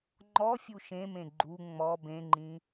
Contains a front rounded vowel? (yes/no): no